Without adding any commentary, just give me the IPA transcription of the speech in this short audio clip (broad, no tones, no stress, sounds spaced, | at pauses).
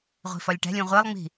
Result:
ʁʷ i̤ f ɒ lʲ ʈ æ̤ lʲ ũ ʁʷ e lˠ ŋ͡m i̤